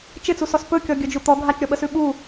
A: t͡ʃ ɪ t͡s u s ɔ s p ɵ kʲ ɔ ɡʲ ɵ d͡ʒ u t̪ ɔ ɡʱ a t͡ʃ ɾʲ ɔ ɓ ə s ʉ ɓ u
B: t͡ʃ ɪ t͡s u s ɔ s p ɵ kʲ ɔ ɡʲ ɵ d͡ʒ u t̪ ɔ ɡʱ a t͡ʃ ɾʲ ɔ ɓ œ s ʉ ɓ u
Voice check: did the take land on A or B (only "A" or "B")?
A